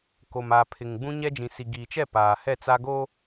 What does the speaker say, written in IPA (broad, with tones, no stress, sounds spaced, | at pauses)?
k o˨ m aː˨ pʰ ɪ˨ ŋ ɡ͡b ũ˦ ɲ ɛ˦ d͡ʒ ĩ˨ s i˨ ɡ iː˨ t͡ʃ ɛ˦˨ p aː˨ h ɛ˦˨ t͡s a˦ ɡ oː˦